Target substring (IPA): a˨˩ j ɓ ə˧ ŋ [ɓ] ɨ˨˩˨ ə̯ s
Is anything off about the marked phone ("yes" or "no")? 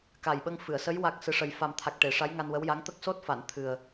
yes